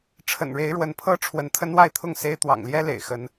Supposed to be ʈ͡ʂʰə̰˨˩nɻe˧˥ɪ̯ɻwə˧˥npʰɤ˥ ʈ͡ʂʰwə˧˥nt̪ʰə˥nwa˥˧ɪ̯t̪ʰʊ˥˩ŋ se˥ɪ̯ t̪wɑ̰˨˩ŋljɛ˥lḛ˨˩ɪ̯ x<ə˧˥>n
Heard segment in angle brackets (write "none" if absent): ə˧˥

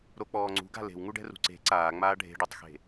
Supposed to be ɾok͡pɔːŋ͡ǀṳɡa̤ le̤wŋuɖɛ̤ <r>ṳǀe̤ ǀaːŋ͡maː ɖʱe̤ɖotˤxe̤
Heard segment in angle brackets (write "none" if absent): r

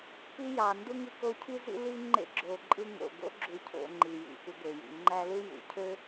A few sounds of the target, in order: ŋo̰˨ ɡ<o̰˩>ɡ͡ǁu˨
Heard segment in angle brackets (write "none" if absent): o̰˥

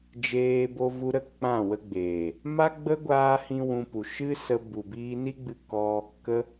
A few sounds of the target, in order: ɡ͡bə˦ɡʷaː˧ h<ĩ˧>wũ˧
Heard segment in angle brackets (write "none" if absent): ĩ˦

